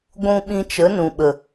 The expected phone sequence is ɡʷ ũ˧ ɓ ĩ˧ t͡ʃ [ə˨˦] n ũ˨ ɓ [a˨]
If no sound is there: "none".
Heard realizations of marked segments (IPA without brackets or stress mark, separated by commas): ə˨˦, ə˨